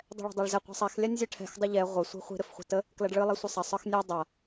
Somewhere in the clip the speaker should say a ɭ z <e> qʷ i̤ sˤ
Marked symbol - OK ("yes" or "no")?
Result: no